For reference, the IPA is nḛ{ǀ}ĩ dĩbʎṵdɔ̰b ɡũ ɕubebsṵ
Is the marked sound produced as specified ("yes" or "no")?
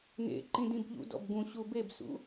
no